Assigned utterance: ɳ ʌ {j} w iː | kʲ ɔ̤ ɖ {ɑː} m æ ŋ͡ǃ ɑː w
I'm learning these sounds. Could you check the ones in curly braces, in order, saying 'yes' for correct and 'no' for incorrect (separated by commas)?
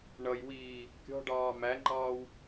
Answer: yes, yes